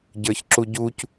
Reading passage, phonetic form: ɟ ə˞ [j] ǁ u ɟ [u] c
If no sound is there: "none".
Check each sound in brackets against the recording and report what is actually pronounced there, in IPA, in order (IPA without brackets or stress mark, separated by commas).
ç, u